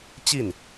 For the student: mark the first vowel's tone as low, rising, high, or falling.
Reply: falling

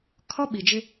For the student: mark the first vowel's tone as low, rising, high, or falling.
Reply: high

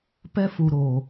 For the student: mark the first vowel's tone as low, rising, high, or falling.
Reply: high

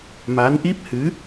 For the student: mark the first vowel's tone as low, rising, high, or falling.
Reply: rising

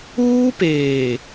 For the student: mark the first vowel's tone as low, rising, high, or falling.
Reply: high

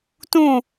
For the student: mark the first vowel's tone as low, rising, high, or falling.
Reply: falling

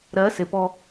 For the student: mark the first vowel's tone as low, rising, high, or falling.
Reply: rising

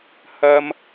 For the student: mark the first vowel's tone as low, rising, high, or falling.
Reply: high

